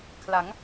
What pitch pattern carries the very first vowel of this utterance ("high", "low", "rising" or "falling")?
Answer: rising